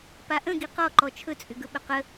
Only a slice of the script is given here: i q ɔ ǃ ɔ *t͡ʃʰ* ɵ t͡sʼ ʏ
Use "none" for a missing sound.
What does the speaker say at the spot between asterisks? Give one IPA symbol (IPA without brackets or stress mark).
t͡ʃʰ